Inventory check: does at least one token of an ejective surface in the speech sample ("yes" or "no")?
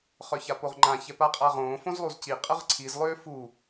yes